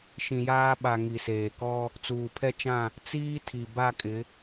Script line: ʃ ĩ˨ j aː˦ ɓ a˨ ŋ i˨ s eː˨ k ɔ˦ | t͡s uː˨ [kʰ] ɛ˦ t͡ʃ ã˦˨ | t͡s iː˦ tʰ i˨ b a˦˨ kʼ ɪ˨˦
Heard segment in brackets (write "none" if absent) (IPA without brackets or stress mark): pʰ